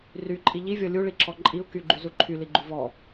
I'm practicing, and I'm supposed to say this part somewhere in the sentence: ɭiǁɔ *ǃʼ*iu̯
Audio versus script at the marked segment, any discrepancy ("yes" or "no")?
no